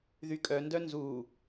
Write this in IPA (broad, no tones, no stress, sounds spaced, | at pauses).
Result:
ð y kʼ œ n d œ n z uː